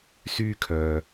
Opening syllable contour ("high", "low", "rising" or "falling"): high